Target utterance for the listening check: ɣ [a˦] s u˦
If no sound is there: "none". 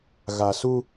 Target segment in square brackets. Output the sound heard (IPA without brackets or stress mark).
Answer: a˨